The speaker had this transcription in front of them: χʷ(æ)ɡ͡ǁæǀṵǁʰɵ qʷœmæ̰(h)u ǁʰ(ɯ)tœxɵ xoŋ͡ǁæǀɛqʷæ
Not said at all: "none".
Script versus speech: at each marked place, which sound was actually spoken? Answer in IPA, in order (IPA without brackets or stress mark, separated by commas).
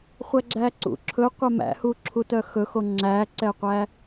æ, h, u